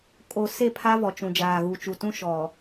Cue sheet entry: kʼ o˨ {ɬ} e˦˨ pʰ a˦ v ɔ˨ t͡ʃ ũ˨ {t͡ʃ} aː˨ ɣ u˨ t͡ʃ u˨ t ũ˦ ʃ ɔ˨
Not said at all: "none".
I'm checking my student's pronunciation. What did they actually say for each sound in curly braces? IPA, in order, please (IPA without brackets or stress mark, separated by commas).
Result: s, d͡ʒ